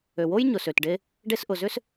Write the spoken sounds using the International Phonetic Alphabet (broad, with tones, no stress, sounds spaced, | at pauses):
ø˨ w o˥ j ɲ ʊ˨ s ø˨ t ɖ e˦ | ɖ e˦ s ʔ ʊ˨ z ʏ˥ s